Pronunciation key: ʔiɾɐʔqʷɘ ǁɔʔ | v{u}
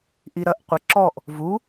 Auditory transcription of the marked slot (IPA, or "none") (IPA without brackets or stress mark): u